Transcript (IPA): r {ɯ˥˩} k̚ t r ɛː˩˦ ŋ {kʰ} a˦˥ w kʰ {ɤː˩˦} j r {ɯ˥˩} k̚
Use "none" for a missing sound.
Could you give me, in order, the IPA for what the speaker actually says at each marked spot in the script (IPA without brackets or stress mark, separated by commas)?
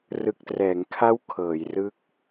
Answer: ɯ˨˩, kʰ, ɤː˩˦, ɯ˦˥